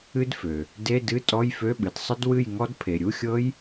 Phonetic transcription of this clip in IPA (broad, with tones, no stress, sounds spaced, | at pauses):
ɨ˦˥ d f ø˩ | d e˧˥˧ d ɨ˧˥˧ tʼ ɔ˧˥˧ j f ø˧˥˧ ɓ ɨ˩ d sˤ ə˦˥ d w ɨ˥˩ j ŋ ɔ˦˥ d pʰ e˩ ɾʲ u˧˥˧ xʲ ɤ˦˥ j